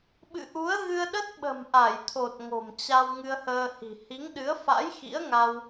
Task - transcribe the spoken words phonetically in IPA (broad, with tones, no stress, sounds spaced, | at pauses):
ɓ ɨ̰˧˨ ʔ u˨˦ ə̯ ɣ ɨ˧ ə̯ ɗ ə˦˥ t̚ ɓ ə̤˨˩ m ʔ a˧˩ j t̪ʰ o˨˩ t̚ ŋ o̤˨˩ m t͡ɕ a˧ w ŋ ɨ˧ ə̯ h əː˧ h i̤˨˩ h i˨˦ ŋ ɗ ɨ˨˦ ə̯ f a̰˧˥ j x ḭ˧˥ ə̯ ŋ a˧ w